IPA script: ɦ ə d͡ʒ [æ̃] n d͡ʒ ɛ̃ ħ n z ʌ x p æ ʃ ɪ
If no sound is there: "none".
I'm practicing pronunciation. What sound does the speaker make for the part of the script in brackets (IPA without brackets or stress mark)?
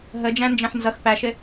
æ̃